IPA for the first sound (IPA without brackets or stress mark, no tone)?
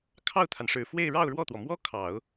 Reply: kʰ